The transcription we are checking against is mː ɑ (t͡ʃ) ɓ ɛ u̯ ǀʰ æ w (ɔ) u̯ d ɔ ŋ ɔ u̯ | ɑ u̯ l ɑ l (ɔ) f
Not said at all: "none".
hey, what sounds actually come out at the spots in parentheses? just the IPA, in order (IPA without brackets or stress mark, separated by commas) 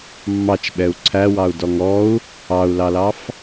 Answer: t͡ʃ, ɑ, ɑ